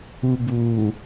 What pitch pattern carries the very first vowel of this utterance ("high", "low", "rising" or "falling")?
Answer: low